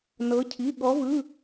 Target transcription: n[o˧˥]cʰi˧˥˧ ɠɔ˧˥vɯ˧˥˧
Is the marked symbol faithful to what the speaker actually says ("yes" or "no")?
no